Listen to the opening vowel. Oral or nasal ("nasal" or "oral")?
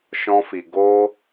nasal